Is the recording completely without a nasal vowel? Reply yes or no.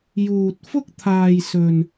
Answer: yes